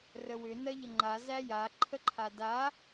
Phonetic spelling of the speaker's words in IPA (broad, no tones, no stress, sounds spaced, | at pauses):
r ə w ʏ n ɜ ʎ ə ŋ͡ǃ a z æ j a ǃʰ ə ǃʰ a d a